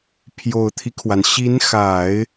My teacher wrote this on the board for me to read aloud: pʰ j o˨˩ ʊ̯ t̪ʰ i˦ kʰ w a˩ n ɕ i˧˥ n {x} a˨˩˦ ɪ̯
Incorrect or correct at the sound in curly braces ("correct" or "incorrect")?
correct